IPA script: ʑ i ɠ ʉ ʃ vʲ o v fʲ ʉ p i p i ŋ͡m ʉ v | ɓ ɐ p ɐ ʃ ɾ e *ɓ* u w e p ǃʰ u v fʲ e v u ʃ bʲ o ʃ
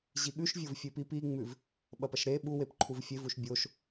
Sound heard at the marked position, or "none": ɓ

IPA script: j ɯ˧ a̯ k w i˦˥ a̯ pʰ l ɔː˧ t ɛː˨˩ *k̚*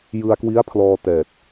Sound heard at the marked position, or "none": t̚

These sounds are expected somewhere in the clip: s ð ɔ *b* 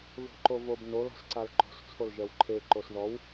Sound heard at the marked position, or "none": w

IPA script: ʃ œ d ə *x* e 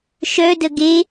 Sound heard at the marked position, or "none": ɡ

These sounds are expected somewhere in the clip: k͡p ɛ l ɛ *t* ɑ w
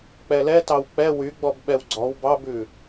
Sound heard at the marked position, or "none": t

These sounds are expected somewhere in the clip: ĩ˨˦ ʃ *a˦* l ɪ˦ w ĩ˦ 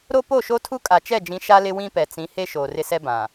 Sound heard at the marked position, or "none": a˦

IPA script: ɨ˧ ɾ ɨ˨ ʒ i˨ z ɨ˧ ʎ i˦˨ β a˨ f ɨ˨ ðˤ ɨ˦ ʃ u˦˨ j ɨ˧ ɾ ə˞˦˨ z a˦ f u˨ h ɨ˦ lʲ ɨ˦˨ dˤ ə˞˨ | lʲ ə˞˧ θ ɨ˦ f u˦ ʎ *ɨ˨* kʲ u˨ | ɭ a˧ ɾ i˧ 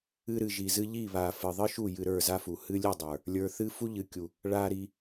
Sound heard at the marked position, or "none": ɨ˨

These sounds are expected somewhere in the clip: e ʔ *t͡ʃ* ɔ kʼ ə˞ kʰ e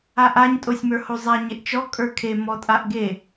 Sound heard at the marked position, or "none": t͡ʃ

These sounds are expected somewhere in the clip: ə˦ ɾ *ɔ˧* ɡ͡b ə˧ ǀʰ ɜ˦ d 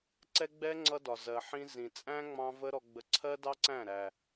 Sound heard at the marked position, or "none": ɔ˧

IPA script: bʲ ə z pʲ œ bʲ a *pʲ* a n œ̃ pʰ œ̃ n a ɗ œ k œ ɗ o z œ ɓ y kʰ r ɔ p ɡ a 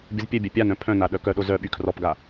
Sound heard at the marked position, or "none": pʲ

